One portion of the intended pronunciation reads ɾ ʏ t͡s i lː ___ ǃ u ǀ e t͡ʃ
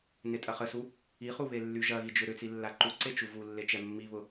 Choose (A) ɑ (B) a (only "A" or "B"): B